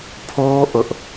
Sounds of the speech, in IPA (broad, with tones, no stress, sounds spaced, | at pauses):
pʰ o˦ ʔ ʊ˦ ʔ